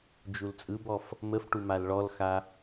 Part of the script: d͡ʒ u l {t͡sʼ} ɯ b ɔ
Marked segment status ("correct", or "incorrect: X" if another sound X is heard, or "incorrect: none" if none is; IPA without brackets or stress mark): correct